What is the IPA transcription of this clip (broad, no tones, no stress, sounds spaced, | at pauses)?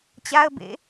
t͡ɕ a ə̯ b ḛ